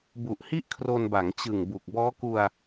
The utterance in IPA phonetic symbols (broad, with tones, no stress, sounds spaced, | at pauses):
b u˨˩ ʔ h i˥˩ ʔ kʰ r o˧ n b a˩˦ ŋ t͡ɕ ɯ˨˩ ŋ b u˨˩ k̚ b ɔː˦˥ k u˧ a̯